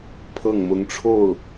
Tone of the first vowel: falling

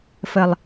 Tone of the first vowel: low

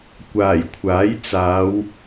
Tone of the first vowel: low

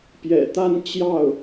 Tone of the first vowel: low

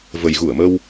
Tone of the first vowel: low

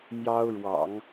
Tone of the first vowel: high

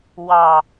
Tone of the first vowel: low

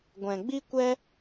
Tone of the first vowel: low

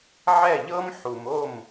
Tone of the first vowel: falling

